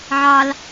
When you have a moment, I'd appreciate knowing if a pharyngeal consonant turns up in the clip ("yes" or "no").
yes